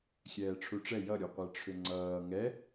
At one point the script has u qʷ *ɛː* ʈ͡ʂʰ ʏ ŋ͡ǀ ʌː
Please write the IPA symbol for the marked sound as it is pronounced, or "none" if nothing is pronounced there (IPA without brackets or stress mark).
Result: ɛ